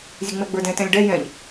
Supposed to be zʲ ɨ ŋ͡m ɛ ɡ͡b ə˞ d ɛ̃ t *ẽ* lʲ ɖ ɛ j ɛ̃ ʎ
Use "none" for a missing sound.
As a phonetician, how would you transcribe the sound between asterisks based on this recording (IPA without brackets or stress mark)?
ɛ̃